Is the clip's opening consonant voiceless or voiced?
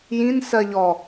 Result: voiced